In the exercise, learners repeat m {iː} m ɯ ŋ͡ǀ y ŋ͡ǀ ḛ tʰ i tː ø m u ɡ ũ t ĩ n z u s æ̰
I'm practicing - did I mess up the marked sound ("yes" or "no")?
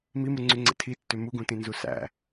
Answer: yes